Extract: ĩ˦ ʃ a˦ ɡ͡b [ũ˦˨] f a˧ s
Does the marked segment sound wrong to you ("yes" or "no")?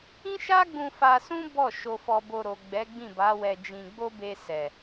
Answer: yes